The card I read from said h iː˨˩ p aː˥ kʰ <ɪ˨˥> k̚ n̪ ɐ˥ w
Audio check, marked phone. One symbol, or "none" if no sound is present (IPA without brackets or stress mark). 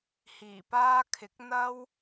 ɪ˨˥